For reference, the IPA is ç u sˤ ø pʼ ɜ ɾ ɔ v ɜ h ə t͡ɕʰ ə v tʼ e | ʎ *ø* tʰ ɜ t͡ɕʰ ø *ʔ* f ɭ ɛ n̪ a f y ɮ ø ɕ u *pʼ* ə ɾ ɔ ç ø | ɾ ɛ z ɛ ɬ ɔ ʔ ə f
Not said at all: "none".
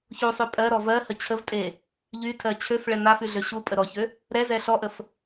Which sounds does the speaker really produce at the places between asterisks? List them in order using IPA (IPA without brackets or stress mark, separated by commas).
y, none, pʼ